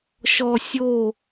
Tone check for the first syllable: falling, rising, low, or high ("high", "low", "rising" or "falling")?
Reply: low